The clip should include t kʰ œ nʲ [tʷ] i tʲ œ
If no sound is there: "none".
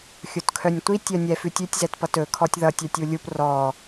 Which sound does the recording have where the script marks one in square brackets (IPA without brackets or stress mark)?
tʷ